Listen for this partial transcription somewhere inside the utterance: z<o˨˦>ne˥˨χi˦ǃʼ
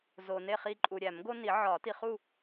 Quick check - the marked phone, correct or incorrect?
incorrect